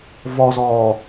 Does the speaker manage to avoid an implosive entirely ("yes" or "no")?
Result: yes